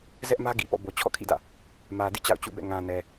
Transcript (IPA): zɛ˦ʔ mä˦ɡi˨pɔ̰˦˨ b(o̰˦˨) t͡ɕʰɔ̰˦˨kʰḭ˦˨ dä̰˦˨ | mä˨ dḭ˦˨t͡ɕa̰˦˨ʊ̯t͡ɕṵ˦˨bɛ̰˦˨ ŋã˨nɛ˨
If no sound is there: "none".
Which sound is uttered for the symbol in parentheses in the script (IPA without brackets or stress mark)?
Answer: o˨